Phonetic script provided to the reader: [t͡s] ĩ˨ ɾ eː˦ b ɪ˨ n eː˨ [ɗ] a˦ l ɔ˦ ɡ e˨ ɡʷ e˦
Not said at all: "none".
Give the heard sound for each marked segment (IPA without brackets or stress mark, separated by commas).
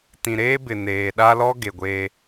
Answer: t, ɗ